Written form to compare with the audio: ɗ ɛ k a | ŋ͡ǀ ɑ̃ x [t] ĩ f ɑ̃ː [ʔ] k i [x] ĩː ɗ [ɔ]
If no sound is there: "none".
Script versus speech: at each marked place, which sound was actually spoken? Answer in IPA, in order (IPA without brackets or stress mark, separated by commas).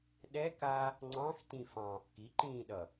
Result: t, ʔ, ǃ, ʌ